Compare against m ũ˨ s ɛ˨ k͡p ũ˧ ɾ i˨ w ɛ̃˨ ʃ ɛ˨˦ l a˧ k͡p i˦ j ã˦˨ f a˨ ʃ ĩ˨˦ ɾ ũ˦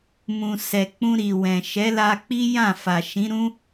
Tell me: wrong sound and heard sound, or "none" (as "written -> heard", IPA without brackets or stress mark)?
none